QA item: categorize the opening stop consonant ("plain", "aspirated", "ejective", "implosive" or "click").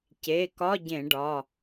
plain